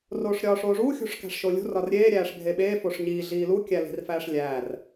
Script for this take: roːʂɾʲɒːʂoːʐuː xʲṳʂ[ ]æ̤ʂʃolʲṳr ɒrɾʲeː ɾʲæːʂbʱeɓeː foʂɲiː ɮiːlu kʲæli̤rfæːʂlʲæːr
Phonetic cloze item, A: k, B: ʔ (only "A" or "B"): A